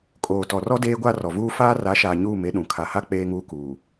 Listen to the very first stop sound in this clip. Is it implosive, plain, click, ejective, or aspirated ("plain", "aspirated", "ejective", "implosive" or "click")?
ejective